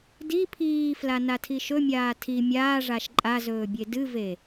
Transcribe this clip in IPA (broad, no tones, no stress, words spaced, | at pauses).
di pʰiːfla natʰiʃɵmʲaː tʰi mʲaː ʐaʃǃʼazɵː bʲedɨve